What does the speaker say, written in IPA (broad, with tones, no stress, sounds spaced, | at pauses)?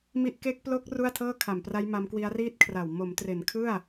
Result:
m i˥˩ ʔ k e˦˥ k̚ p l o˦˥ k̚ r u˥˩ a̯ tʰ ɤː˥˩ kʰ a˨˩ m p r a˦˥ j m a˦˥ m k w i˦˥ a̯ r iː˥˩ t̚ kʰ r a˨˩ w m o˩˦ m t r e˩˦ n kʰ ɯ˥˩ a̯